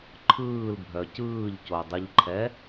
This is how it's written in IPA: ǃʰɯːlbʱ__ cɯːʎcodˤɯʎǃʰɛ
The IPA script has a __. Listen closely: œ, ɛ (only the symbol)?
œ